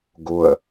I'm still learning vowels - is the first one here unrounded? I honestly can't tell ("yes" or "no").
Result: no